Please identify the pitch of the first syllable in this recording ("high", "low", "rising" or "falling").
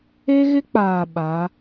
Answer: high